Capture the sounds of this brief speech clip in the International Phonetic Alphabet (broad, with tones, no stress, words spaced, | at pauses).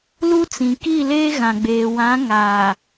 lu˦t͡sĩ˨ki˦˨leː˦ ɣã˨ɡ͡beː˨ wã˨˦ŋaː˨